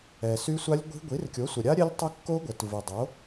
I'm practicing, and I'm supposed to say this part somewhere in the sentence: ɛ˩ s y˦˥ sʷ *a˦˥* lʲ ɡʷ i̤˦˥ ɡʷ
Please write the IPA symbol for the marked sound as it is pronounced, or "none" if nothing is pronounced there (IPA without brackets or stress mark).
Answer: a˦˥